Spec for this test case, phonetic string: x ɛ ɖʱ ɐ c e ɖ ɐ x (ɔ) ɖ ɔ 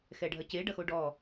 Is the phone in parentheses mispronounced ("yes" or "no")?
yes